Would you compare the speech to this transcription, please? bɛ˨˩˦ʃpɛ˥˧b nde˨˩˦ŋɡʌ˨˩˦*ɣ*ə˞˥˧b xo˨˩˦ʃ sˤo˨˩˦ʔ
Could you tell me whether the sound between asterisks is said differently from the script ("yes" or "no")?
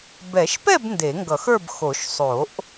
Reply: yes